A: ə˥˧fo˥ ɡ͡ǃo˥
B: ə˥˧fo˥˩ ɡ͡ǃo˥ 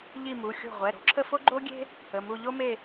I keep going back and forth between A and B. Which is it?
A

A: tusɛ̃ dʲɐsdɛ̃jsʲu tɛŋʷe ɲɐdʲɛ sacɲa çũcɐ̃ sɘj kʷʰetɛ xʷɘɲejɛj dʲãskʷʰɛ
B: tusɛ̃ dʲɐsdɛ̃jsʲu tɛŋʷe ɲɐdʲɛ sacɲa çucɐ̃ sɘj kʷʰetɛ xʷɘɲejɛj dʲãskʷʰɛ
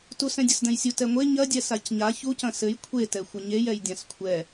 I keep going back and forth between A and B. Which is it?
B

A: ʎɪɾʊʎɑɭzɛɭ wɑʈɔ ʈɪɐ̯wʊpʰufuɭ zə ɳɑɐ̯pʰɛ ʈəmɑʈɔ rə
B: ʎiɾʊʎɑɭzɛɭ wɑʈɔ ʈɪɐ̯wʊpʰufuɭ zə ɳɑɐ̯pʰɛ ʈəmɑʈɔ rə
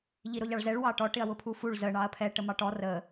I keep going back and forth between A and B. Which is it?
B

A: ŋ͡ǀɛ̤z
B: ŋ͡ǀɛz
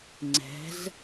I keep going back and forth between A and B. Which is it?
A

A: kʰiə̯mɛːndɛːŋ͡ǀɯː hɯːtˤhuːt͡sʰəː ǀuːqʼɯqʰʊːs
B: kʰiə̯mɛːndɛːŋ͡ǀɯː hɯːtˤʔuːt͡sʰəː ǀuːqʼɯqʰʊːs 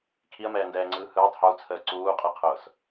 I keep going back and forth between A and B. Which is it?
A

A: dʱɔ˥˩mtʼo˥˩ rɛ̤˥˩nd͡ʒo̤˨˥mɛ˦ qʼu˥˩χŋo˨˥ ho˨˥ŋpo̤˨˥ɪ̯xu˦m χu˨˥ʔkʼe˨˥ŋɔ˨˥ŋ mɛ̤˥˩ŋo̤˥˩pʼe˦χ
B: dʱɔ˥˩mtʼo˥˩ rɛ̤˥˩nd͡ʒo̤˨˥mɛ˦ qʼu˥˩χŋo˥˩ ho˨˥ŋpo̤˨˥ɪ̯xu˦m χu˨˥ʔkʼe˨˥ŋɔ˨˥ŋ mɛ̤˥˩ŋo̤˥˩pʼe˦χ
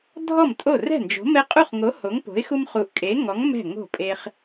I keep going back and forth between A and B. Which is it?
A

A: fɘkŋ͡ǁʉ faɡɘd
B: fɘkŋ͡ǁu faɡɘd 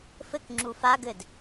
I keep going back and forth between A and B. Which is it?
B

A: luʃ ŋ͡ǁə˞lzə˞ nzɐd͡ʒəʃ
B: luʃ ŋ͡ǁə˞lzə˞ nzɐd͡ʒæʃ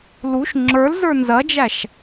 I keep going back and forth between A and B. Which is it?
B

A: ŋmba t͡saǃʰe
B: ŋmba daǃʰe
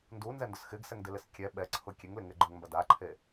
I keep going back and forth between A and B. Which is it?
B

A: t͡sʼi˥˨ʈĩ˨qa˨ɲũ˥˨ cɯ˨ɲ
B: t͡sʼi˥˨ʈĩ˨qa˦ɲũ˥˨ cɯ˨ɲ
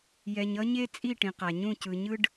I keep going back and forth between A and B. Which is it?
A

